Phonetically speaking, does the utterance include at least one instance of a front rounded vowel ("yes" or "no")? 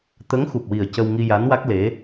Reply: no